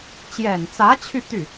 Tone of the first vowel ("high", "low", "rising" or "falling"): low